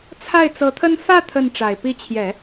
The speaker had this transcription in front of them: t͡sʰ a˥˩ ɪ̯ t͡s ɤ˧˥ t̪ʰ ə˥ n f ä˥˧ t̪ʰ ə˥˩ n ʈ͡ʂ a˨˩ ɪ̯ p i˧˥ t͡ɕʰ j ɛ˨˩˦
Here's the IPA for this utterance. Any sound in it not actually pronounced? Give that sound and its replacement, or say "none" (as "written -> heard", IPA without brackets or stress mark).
none